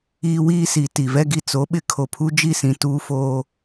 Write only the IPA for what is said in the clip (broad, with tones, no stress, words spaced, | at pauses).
iː˦wiː˦si˨ ti˨vɛ˦ɡi˦ t͡so˨˦ɓɪ˦ kʰo˨pʰu˦d͡ʒi˦˨sĩ˨ tuː˦foː˦